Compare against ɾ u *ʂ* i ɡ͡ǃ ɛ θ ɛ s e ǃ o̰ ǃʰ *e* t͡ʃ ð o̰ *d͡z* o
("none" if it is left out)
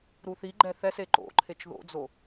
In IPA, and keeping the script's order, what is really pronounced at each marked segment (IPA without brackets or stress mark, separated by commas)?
θ, e, d͡z